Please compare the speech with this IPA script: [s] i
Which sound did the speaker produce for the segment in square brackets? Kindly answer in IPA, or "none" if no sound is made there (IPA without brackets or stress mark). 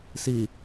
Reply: s